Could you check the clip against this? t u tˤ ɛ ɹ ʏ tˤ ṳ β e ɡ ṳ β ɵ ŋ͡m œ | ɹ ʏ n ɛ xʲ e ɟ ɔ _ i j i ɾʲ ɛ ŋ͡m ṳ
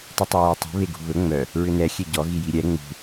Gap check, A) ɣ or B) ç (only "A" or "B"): A